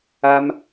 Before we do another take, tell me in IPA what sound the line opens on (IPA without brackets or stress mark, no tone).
a